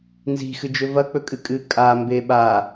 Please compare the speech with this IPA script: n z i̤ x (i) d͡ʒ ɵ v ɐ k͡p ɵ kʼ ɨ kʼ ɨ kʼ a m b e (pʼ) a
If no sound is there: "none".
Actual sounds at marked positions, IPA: ɨ, ɓ

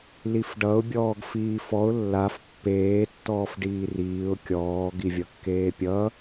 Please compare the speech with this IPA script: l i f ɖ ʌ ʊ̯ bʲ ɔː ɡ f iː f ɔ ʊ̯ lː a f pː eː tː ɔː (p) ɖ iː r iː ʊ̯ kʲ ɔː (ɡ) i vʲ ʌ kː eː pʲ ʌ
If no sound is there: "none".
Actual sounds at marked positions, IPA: f, ɡ

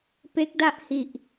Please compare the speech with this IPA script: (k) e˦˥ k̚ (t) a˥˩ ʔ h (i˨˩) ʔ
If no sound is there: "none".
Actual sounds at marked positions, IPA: p, d, i˨˩

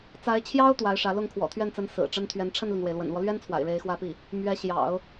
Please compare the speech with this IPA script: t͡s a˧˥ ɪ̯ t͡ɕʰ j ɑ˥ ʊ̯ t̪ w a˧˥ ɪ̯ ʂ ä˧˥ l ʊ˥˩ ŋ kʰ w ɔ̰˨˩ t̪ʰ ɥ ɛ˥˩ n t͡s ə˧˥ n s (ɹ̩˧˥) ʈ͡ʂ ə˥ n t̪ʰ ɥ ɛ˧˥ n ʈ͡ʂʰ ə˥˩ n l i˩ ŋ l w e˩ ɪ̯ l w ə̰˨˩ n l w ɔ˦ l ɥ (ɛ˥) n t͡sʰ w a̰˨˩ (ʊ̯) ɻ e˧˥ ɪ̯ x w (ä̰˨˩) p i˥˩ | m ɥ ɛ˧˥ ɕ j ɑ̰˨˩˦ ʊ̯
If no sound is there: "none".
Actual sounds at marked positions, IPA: ɹ̩˨˩, ɛ˥, ɪ̯, ä˥˧

